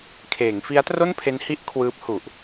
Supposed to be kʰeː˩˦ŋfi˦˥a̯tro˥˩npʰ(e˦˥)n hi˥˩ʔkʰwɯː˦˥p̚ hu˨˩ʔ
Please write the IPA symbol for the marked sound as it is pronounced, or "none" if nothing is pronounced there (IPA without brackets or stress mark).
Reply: e˦˥